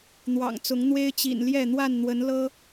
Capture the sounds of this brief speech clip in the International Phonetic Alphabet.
n̪ w ɑ̰˨˩ ŋ t͡s ʊ˨˦ ŋ n̪ w e˦ ɪ̯ t͡ɕ ḭ˨˩ n l j ɛ˥˨ n̪ w a˥˨ n n̪ w ə˨˦ n l ɤ˦

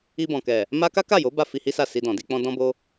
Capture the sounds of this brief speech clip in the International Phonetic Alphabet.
i˧ b ɔ̃˨ k ɛ˨ | m a˦ k a˦ k a˦˨ j o˨˦ b a˦ f i˧ h i˦ s a˦˨ s i˧ d ɔ̃˨ d i˨˦ k͡p ɔ̃˦ d ɔ̃˦ b o˦

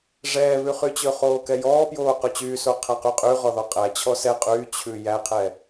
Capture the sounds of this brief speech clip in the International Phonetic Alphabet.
ʐ ɛː β ʉ χ y t͡ɕ ɵ χ oː k ɛ j ɔː p j oː q ɵ t͡ɕ yː s o qʰ æ q y qʼ y ʁ ɔ ð ɔ qʼ æ t͡ɕʰ ɔ s ɛ qʼ yː t͡ɕʰ ʉ j æ qʰ ɛ

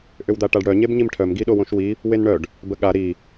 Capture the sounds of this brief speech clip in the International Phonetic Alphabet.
ʔ ʏ w d̪ a ʈ a ɖ ɽ œ ɲ e b ɲ i m ʈʰ œ m ɡ i ɗ o w õ ʃ w i | w e n ɳ œ ɖ | b ə ɠ a ɾ i

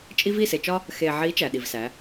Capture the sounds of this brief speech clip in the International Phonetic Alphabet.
t͡ʃʼ i˦ v i˦˨ s e˨ t͡ʃ ɒ˦ | x e˨ ʕ i˨˦ t͡ʃ æ˨ ɗ i˨ v s æ˨˦

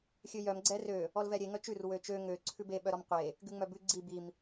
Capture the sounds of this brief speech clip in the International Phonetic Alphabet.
xʲ ø j œ m ɡ͡ǀ ɛ r ø | ɔ l v ɛ ɾʲ e ŋ œ t͡ʃ ʉ r w ø t͡ʃ ø ŋ ø ǀʰ ʉ b e ɓ œ ɾ ɔ m qʷ e | ɡ ʉ ŋ͡m œ b ʉ ɡ͡ǀ i b i m

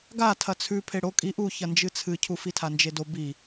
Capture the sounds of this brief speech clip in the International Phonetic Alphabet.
ɡ a tʰ ɐ t͡sʰ ʉ pʰ e ɽ o kʼ i ʔ u ç ɐ n d͡ʒ ɨ t͡sʰ ɨ cʰ u f i tʰ a n d͡ʒ e d o b i

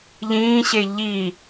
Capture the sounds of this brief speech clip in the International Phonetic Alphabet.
ʎ ĩː ɕ e ʎ i

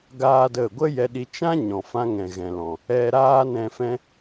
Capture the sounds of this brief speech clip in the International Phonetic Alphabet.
ɡ aː˦ d ə˦˨ ɡʷ ə˦ j ɛ˧ ɗ i˧ t͡ʃ ã˦ ɲ ɔ̃˨ f ã˧ ŋ ɛ̃˨ ɣ ɛ̃˨ l ɔ̃˨ | ɛ˧ ɾ aː˦ n ɛ̃˧ f ɛ̃˦

